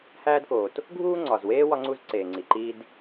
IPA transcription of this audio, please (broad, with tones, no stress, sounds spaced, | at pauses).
h æː˥ d k oː˩ t | ɡʱ uː˥ ŋ͡ǀ ɒ˩ z w eː˥ w ɒ˥ ŋ͡ǀ u˥ z ǀ eː˩ ŋ͡ǀ i˩ ǃ iː˥ d